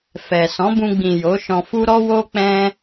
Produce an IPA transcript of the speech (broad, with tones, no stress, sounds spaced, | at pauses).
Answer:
f ɛ˨ s ɔ̃˨˦ b ũ˧ ɡ͡b ĩ˨ j o˨˦ ʃ ɔ̃˧ f u˦ ɾ ɔ˦ w o˦ k͡p ɛ̃˦